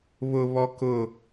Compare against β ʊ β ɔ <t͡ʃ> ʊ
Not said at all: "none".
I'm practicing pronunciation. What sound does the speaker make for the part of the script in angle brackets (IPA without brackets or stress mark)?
k